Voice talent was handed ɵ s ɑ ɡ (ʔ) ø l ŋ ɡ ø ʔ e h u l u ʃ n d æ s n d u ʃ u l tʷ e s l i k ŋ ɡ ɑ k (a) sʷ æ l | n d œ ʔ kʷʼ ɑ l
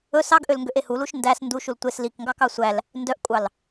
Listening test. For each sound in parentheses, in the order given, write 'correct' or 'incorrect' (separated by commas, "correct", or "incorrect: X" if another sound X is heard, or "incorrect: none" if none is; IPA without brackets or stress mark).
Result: correct, incorrect: ɑ